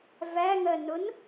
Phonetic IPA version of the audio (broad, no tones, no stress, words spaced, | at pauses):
væŋɜnʊn